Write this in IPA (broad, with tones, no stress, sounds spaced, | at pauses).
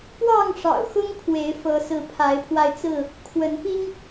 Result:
p w ɑ˥˨ ŋ ʂ ɑ̰˨˩ ʊ̯ x ʊ˦ ŋ kʰ w e˨˦ ɪ̯ f ɤ˨˦ s ɹ̩˨˦ pʰ a˨˦ ɪ̯ pʰ w a˧ ɪ̯ t͡s ɹ̩˥˨ | kʰ w ə˨˦ n p i˦ ŋ